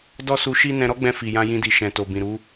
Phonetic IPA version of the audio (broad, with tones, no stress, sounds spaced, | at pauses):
d ɔ˦ s u˧ ʃ i˦ n ɛ̃˧ ɾ ɔ˦ ɡ͡b ɛ̃˧ f i˨ j ã˧ j ĩ˧ d i˨ ʃ ɛ̃˨ t o˨ b ĩ˨ ɾ u˨˦